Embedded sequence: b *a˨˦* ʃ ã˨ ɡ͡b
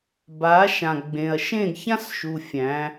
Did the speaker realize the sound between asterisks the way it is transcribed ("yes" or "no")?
yes